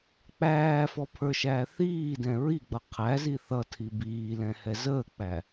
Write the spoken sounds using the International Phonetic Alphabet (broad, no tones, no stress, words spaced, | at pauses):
k͡pæːfɔpʰə˞ʃæː θiːdɛ̃ ɹiɡ͡bʌ qʰæzi θʌtʰi biːlɛ̃hɛ zəːk͡pæ